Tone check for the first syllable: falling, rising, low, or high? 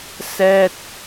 falling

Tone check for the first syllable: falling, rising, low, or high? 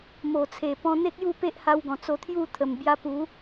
low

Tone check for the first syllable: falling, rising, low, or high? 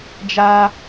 high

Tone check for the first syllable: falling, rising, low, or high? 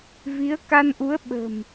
rising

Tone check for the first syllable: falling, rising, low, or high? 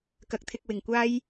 low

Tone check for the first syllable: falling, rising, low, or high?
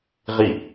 falling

